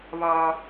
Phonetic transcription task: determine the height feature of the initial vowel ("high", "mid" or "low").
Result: low